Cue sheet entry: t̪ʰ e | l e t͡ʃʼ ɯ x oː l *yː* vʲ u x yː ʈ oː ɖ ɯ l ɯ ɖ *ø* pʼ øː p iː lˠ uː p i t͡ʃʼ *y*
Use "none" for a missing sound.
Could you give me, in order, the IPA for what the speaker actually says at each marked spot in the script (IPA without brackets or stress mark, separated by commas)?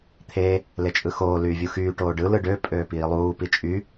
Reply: yː, ø, y